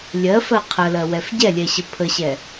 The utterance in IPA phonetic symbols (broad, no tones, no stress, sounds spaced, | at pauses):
lʲ ɜ f ɜ qʰ ə l ɜ w ɛ f ɟ ɛ lʲ ɛ ɕ ə pʰ ə ɕ ɛ